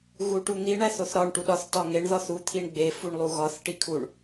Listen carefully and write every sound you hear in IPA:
ɣ u ʈ u n̪ i ɳ æ θ o θ ɾ ɒ ɳ ʈ u ɗ ɒ θ t ɒ ŋ e ɳ ð ɒ θ u t̪ʰ i ɳ ɡ͡b e f u ɳ lˠ u ɣ ɒ θ ʈ i kʰ u ɳ

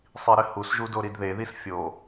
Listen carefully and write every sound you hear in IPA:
sˤ i ɾ ɘ h u s ʒ u d o ɾ i d ð e ð i s fʲ o

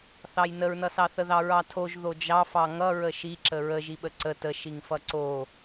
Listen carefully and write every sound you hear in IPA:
θ ɑ j n ə ɹ n ʌ s ɑ θ ə ð ɑ ɹ ɑ tʰ o ʒ ð o d͡ʒ ɑ f ɑ ŋ ʌ ɹ ə ʃ i ǁ ə ɹ ə ʒ i ɓ ə ǀ ə t ə ʃ i ŋ f ʌ ǀ o

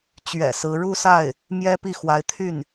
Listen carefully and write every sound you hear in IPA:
t͡ɕ ɥ ɛ̰˨˩ s ɹ̩˧˥ ɻ u˥˧ s a˥˩ ɪ̯ | m j ɛ˥ p i˥˩ x w a˧˥ ɪ̯ t̪ʰ y˥˩ n

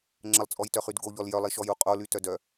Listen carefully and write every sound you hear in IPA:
ŋ͡ǁ ə lˠ t͡sʼ ɔ j t œ χ y d ɡ o ʎ ɔ l j œ lˠ i ʃ ɔ j u qʼ o l y t œ d œ

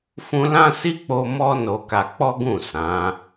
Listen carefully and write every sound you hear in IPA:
f ũ˧ l ã˦ s i˦ k͡p o˦ m ɔ˧ n o˧ k a˧ k͡p ɔ˦ ɡ ũ˦˨ s ã˨˦

